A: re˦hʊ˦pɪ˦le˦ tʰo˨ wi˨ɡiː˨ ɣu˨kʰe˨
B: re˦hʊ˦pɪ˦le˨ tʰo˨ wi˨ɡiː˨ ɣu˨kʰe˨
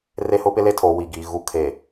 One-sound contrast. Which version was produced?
A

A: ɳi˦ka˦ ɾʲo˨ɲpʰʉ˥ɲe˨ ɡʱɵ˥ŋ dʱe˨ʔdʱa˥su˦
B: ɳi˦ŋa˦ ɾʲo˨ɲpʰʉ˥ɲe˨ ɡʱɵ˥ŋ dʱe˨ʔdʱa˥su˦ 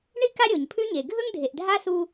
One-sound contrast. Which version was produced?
A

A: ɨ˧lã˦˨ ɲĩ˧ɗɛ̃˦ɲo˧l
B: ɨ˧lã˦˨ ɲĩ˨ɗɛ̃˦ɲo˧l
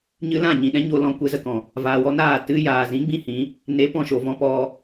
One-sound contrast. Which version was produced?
B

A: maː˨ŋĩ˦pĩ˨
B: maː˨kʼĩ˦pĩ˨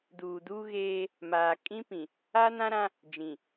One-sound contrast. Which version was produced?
B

